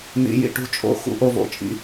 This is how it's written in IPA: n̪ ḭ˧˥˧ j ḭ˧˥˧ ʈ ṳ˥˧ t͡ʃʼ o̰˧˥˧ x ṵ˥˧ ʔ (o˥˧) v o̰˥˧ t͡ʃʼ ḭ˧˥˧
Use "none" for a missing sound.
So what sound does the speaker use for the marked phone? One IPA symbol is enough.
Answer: o˥˧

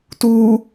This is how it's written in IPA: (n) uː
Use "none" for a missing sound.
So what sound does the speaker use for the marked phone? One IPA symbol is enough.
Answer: t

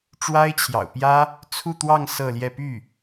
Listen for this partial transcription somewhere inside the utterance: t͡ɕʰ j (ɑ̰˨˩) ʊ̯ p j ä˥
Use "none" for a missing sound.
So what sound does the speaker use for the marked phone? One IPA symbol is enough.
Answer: ɑ̰˨˩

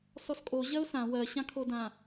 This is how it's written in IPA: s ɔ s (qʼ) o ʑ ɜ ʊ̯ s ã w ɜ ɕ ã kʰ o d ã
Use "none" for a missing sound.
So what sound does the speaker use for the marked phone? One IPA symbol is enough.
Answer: kʼ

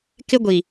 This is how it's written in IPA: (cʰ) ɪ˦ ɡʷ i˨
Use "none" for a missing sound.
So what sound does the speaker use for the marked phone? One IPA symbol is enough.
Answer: k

